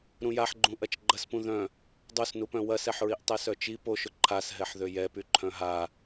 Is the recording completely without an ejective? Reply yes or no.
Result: yes